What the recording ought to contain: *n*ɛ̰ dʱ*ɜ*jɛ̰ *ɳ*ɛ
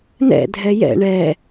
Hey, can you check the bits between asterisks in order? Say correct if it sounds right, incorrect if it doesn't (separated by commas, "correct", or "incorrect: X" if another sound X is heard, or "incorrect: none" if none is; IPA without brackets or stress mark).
correct, incorrect: ɛ, correct